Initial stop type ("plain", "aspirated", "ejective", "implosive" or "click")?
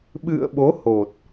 implosive